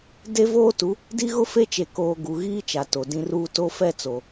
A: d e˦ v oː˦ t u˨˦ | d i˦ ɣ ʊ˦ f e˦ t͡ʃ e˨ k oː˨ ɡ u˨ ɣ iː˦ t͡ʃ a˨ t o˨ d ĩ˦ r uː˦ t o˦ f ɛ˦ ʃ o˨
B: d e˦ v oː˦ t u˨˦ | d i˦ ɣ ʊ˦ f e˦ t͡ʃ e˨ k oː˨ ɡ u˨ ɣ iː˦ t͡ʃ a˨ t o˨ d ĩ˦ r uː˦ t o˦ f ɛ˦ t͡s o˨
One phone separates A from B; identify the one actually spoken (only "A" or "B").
B